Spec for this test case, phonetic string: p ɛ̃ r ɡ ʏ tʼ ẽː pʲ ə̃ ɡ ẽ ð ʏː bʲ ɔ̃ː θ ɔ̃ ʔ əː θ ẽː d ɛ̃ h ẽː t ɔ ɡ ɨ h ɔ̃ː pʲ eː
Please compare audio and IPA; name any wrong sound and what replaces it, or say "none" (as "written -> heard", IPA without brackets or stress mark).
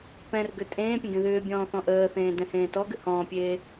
none